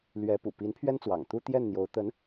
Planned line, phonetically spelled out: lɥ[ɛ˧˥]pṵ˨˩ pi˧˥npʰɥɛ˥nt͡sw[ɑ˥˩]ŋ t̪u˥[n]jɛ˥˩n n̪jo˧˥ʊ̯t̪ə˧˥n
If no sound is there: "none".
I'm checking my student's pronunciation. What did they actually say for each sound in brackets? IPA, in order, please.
ɛ˧˥, ɑ̰˨˩, t̪

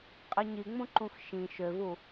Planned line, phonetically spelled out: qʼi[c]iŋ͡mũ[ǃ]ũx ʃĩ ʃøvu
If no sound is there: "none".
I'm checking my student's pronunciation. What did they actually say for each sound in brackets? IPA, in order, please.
ɲ, ǃ

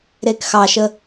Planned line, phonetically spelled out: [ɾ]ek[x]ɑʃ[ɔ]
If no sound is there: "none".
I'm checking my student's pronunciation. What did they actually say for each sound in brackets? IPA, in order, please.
ɾ, x, ə

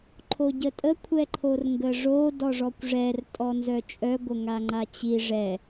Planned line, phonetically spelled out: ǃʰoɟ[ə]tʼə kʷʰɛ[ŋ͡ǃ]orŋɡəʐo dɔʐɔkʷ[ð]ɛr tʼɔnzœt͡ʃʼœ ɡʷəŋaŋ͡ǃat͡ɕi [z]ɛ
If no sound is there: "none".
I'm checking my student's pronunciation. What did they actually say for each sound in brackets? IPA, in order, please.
ə, ǃʰ, ʐ, ʐ

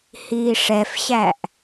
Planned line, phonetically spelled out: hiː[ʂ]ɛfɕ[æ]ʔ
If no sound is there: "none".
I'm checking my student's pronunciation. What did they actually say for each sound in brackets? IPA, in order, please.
ʂ, æ

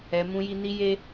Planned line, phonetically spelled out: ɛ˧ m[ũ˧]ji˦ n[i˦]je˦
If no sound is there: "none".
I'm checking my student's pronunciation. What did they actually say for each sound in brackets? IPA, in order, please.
ũ˦, i˦

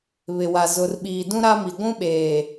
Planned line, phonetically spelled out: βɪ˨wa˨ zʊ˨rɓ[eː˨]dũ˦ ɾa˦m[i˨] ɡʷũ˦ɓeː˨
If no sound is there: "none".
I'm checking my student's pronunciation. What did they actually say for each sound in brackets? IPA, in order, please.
iː˨, i˨

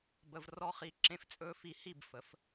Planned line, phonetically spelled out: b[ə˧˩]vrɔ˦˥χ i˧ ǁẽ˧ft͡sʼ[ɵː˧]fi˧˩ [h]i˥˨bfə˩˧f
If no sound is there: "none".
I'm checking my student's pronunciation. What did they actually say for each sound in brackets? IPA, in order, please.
ə˧, ɵː˧, h

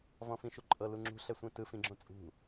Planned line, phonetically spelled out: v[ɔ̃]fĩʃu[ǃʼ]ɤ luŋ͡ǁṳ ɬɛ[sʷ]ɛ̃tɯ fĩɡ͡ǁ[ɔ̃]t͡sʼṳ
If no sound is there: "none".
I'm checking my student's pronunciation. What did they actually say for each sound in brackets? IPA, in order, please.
ɔ̃, ǃʼ, sʷ, õ

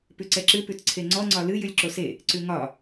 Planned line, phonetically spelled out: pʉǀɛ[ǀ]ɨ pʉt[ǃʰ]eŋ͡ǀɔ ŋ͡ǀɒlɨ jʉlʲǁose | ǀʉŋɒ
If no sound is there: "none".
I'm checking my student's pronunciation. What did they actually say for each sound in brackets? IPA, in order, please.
ǁ, ǀʰ

